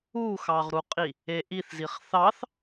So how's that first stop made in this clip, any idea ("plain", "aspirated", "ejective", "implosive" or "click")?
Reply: ejective